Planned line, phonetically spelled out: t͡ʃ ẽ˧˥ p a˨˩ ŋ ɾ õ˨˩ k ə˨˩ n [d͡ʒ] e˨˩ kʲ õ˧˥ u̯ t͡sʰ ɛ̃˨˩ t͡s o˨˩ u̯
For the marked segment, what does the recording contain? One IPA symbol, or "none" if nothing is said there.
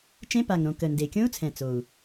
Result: d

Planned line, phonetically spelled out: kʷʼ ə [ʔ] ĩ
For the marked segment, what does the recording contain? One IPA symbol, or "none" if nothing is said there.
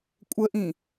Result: ʔ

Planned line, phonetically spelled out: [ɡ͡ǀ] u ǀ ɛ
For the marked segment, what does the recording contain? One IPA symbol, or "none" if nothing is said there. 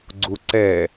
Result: ɡ͡ǀ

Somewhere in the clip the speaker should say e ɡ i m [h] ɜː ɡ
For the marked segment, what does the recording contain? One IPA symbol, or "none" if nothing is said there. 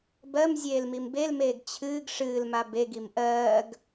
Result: ʔ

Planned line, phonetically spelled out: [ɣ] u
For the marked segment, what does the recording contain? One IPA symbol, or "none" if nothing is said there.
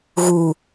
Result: ɣ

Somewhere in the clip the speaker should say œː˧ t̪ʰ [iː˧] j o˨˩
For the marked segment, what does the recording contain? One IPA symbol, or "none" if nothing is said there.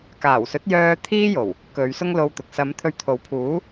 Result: iː˥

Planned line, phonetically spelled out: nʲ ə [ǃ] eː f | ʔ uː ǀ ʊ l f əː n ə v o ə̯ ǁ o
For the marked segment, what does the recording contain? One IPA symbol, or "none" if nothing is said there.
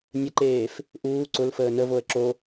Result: ǃ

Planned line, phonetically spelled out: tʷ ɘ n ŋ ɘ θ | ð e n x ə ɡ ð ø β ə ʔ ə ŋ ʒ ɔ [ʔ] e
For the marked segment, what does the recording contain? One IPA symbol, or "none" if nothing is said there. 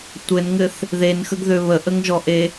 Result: ʔ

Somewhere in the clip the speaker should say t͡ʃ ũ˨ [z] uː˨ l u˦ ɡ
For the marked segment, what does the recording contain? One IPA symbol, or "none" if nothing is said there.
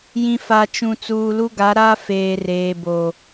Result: t͡s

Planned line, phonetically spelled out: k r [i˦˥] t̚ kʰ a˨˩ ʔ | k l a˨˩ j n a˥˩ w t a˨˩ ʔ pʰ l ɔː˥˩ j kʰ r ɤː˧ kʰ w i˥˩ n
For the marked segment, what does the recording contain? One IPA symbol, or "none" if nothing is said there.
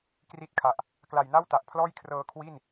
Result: i˦˥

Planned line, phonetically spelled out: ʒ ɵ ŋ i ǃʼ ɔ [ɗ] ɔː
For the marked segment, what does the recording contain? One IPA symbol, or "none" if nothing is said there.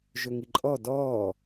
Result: d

